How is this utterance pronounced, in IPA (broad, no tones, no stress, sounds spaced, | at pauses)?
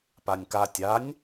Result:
p a nʲ k a tʲ a nʲ